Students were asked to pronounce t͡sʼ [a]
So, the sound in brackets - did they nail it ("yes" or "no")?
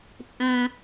no